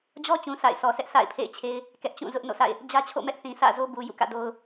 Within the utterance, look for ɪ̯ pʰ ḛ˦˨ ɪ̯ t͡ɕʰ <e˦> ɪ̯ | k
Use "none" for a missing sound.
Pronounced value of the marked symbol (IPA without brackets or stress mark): e˦